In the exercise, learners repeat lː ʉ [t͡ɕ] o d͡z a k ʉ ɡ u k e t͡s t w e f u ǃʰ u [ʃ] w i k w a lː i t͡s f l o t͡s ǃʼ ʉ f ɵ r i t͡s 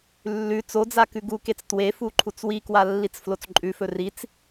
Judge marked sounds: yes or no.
no, no

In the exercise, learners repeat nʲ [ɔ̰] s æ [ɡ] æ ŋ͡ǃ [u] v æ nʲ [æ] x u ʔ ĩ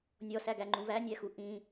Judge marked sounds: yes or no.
no, yes, no, yes

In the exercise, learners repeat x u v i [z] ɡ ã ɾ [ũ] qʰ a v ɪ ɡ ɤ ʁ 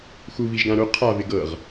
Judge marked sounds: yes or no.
no, no

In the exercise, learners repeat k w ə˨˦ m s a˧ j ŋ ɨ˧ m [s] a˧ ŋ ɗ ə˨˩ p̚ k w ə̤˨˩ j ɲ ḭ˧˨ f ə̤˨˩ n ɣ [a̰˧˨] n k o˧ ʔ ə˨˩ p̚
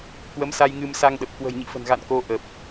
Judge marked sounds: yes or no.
yes, yes

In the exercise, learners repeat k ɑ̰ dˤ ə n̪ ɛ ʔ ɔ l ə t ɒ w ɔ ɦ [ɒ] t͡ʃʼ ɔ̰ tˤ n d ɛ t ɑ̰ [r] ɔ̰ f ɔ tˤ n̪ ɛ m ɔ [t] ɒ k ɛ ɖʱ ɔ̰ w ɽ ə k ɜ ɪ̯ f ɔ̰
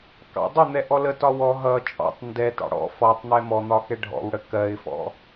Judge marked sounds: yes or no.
no, no, no

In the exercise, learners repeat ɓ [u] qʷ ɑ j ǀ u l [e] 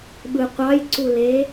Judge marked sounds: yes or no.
no, yes

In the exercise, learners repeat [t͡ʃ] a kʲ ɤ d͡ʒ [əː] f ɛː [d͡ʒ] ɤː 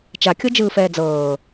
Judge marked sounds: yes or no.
yes, no, no

